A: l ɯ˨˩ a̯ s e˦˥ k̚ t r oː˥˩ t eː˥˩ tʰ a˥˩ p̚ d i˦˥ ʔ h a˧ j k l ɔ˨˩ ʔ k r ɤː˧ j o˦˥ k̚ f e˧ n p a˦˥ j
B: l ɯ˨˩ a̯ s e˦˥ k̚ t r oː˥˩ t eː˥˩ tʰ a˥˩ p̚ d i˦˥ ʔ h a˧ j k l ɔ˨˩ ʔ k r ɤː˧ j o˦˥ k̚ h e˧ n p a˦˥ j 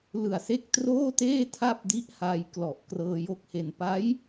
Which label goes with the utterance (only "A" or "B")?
B